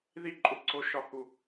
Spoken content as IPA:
ð i˦˨ ǃʼ u˨ ǀʰ o˦ ʃ ɒ˦ h u˦

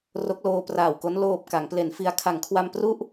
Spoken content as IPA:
r o˦˥ k̚ l oː˧ p r aː˨˩ w k o˦˥ n l oː˨˩ p̚ k a˩˦ ŋ p l e˩˦ n f i˧ a̯ kʰ a˩˦ ŋ kʰ w a˧ m p r u˥˩ ʔ

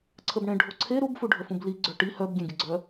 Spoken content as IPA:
ǀʰ ə b ɳ ẽ ɖʱ o ǀʰ e ɾ u b f u ɖʱ ə f ũ b l i ɡ͡ǀ œ ʈ i h œ b ɡʲ ẽ ɡʲ ə ɡ͡ǀ œ

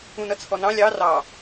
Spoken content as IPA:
ũ n ʌ t͡sʰ ɔ n ɑ̃ lʲ ɑ r ɑ

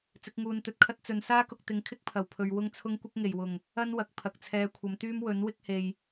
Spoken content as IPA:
t͡s ɪ˨˥ k̚ ŋ uː˧ n t̪ ɵ˧ t̚ kʰ ɐ˥ t̚ t͡s ɵ˨ n s aː˥ k ʊ˨ k̚ t̪ ɪ˨˧ ŋ kʰ ɪ˥ k̚ pʰ ɐ˨˩ w pʰ ɵ˨ ɥ w ʊ˥ ŋ t͡sʰ ʊ˥ ŋ kʷ ɪ˥ k̚ ŋ e˨˩ j w ʊ˨˩ ŋ | ɐ˥ n w ɐ˨ k̚ pʰ ɐ˨ k̚ t͡sʰ ɛː˧ kʷʰ ɐ˨˧ m t̪ yː˥ m w ɵ˨˥ n w ɪ˥ k̚ h e˨ j

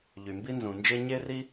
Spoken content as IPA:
ʎ y˩ m b i˥ n z ũ˩ n d͡ʒ e˥ ɲ e˥ r i˥

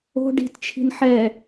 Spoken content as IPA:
o̤ ɖ i̤ t t͡ʃʰ i̤ n ħ ɛ

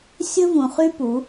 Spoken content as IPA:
sʲ ɵ˦ v ũ˨ χ y˦ p u˨˦

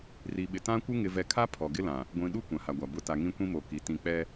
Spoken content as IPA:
r i˨ ɓ ɪ˨ t ã˦ kʷ ɪ˦ ŋ ɪ˨ v ɛ˨ kʰ a˦ pʰ ɔ˨ ɡ ɪ˦ l ã˨ | ɡʷ ĩ˨ ɗ u˦ kʷ ã˨ h a˨ ɡʷ a˨ b ʊ˨˦ t a˨ ŋ ĩ˦ kʷ ĩ˦ m o˨ k i˨ t ĩ˦˨ k͡p ɛ˦

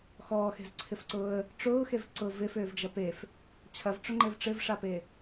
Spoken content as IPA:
x ɔː x e̤ z ǀʰ ɪ f ǀ ʊː ə̯ | ʈ͡ʂ ʊː x e v ǀ ʊ v ɪ f ʏː v d͡ʒ ɐ p e f | t͡ɕʰ ɐ v ʈ͡ʂ ʊ ŋ͡ǃ e v ʈ͡ʂ ɪ v ʂ a p e

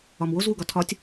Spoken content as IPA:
ɒ m w o z w u ɡ ɒ tʰ ɒ tʲ

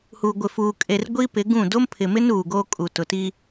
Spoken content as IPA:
h uː˨ ɡʷ ɪ˨ f uː˨ kʼ e˨ r ɡʷ iː˦ p ɪ˨˦ ɡ ũ˦˨ d o˦ m pʰ ɪ˨ m ɪ˦ n uː˨ ɡ o˦ kʼ u˨ t ʊ˨ t i˦

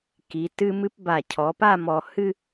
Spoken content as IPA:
k i˩˧ t ɨ˧ m ɨ˧ p b a˧˩ cʰ ɔ˩˧ p a˥˧ m ɔ˧ h ɨ˥

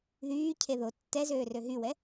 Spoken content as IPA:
ð yː cʰ e ð o tː ɛ z øː r ø ɦ y w ɛ

